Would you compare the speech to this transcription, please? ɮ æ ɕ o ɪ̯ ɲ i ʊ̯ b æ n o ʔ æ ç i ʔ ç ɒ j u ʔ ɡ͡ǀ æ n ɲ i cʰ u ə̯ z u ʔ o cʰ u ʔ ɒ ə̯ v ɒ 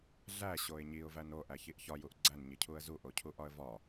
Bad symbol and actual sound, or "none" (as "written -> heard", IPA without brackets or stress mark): b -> v